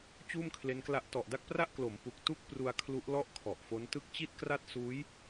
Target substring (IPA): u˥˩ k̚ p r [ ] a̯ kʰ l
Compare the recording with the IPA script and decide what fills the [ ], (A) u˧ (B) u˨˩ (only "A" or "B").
A